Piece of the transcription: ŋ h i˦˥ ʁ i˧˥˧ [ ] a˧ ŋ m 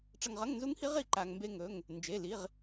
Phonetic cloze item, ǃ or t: ǃ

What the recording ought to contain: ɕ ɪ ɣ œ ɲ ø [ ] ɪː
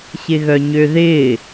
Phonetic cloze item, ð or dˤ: ð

